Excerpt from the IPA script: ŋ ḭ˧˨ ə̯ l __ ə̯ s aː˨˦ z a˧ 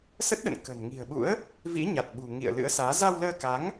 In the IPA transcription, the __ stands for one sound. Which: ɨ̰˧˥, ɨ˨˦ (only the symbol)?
ɨ̰˧˥